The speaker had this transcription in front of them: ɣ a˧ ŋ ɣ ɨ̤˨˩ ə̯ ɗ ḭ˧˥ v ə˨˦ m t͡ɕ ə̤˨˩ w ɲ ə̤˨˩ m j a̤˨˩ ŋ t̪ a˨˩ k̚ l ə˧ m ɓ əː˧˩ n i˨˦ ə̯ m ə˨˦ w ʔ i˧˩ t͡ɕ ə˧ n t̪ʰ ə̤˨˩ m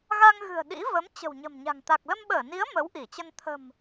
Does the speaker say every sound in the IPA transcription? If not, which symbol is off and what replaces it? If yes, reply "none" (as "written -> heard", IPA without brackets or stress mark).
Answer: j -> ɲ